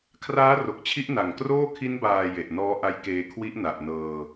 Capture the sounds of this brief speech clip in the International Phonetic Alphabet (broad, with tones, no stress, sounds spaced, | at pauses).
kʰ r aː˦˥ r o˨˩ k̚ t͡ɕʰ i˦˥ ʔ n a˨˩ ŋ k r oː˥˩ kʰ i˦˥ n b aː˨˩ j e˨˩ ʔ n ɔː˦˥ ʔ a˦˥ j k eː˧ kʰ w i˦˥ ʔ n a˨˩ ʔ n ɤː˧